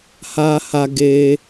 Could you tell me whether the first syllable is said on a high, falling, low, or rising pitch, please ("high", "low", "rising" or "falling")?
high